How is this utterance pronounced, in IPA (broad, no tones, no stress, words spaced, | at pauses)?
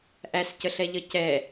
ʔæscəɬɛʎʌ cɛ